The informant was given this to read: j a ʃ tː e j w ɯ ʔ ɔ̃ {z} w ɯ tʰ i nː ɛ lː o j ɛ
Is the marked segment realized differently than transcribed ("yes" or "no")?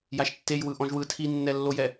yes